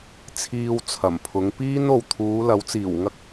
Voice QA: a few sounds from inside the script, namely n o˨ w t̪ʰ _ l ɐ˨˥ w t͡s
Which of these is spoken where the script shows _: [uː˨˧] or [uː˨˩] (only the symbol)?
uː˨˧